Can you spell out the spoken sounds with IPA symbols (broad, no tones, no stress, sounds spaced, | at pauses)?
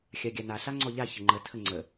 xʲ a ɡʲ a n a ɬ a ŋ͡ǀ ɔ ʎ a ç ə ŋ͡ǃ ə tʰ ə ŋ͡ǀ ə